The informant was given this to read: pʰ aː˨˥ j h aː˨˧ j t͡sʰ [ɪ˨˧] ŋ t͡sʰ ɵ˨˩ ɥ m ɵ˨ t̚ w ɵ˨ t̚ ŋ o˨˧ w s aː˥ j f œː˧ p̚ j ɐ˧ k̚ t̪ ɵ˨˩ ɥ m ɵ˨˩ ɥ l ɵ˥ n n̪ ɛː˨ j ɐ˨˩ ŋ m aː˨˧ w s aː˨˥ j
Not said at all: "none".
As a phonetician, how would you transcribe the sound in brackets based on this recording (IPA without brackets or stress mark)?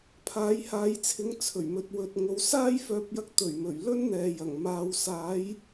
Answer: ɪ˨˧